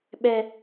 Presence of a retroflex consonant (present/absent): absent